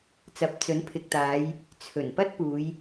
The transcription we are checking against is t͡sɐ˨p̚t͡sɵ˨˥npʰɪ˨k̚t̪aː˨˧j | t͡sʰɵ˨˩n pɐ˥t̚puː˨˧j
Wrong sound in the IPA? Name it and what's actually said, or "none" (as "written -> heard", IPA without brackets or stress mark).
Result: none